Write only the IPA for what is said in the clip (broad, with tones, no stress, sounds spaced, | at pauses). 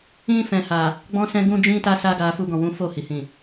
ĩ˧ f ɛ̃˨ h a˨ | ɡ͡b ɔ̃˦ s ɛ̃˦ ɡ ũ˦ d͡ʒ ĩ˦ t a˦ s a˦ ɡ a˧ f u˦ ɡ ɔ̃˦˨ w ũ˨˦ f o˦˨ h i˨ h ĩ˨